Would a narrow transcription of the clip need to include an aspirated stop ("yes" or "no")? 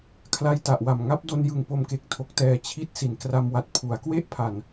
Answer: yes